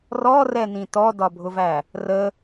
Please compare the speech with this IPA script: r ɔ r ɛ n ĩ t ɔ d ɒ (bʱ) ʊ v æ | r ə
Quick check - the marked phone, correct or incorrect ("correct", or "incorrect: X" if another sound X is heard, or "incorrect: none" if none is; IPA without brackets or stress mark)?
correct